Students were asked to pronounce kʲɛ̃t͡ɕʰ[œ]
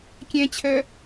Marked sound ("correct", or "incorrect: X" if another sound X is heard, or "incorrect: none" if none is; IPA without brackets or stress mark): correct